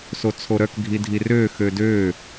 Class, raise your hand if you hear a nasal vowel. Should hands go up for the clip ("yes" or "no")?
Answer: no